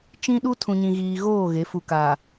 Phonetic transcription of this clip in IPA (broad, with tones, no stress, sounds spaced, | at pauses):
t͡ʃ ĩ˦ ɗ u˦ tʰ ũ˨ ɲ ĩ˨ ɣ iː˨ ɣ oː˦˨ ɣ e˨˦ f u˨ k aː˨